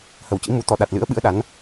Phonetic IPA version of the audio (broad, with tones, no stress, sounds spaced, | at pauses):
h ə˧˩ w t͡ɕ ḭ˧˥ m u˨˦ t̪ ɔ˧˩ ɗ a˨˩ t̚ l ɨ̰˧˥ ə̯ ɓ ɨ̰˧˥ ə̯ ɗ a˨˦ n